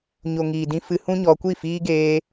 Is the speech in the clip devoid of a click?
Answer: yes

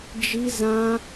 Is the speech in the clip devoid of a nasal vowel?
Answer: no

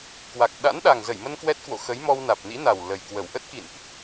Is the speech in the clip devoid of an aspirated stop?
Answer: yes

